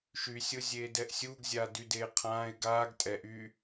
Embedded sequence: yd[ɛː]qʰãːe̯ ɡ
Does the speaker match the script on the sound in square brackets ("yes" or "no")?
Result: no